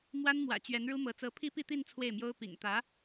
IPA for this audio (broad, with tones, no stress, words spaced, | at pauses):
mwa˥nmwä̰˨˩ t͡ɕɥɛ˧˥n ɻu˥mɤ˧˥ t͡sɤ˧˥pʰi˥pi˥˧t̪i˥˧n t͡sʰwe˥˩ɪ̯mjo˥ʊ̯pḭ˨˩ŋ t̪ä˧˥